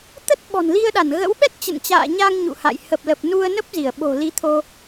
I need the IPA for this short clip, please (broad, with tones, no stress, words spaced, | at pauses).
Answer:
t̪ə˦˥t̚ ɓɔ̤˨˩nli˧ə̯ɗa˧˩n ɣə̰˧˥w ɓɛ˦˥t̚t͡ɕə̰˧˨nt͡ɕa̰ː˧˨ ɲa˧ŋ ɲṵ˧˨ha̰˧˨j hə˨˩p̚lə˨˩p̚ nu˧ə̯nə˦˥p̚ zi˧˩ə̯ɓo̤˨˩li˨˦ t̪ʰo˧